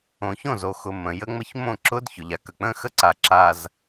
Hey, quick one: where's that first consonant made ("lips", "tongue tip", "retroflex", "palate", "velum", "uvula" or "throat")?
palate